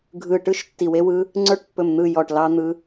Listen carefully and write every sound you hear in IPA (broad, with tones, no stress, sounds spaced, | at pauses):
ɡʱ ɯ˧˩ ʈ ɯ˦˥ ʃ tː i˧˩ w e˦˥ w ɯ˦˥ | ŋ͡ǀ ə˞˦˥ ʈ pː ɵ˧˩ m n̪ ɯ˧˩ j ɔ˧˩ ʈ l ɑ˦˥ n̪ ɯ˦˥